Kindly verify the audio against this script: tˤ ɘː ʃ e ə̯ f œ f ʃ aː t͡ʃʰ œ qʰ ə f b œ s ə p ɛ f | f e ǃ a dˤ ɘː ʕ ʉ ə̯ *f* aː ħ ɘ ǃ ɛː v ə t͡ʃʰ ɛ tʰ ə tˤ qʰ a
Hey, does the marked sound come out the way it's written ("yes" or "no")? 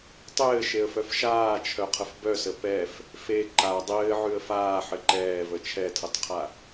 yes